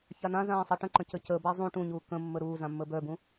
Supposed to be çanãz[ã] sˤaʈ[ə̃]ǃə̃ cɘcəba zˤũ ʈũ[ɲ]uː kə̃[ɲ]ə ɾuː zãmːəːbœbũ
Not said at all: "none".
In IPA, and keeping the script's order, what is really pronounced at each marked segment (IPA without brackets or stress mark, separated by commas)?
ãː, ə̃, ɲ, mː